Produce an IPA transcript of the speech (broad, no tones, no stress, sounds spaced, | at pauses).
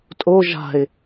tʼ o ʒ a̤ ɪ̯